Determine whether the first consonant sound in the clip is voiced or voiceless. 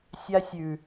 voiceless